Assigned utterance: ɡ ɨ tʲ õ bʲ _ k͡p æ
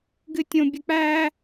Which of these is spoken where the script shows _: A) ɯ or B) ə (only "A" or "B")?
B